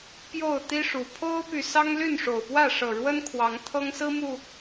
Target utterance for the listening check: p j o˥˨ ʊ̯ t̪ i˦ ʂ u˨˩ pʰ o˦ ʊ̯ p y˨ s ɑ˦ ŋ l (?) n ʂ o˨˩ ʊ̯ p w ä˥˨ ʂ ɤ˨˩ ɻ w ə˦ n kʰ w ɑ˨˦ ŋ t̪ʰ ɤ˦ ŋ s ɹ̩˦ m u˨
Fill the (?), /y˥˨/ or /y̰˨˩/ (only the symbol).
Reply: y˥˨